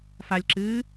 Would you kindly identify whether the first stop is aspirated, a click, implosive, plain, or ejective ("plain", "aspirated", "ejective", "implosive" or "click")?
click